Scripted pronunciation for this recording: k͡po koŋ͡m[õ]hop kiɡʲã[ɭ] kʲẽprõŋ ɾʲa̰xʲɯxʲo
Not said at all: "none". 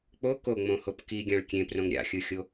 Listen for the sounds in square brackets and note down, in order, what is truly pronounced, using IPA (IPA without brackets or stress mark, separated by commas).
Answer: õ, ɭ